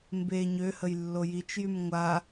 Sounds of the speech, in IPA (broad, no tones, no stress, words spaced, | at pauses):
mbe ɲøhəjlːo jit͡ʃjym ŋʷa